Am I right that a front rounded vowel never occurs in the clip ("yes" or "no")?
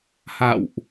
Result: yes